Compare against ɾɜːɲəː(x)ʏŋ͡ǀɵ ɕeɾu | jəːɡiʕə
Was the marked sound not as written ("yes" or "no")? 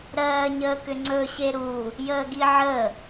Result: yes